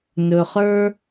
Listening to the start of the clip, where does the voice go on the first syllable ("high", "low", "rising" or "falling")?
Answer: low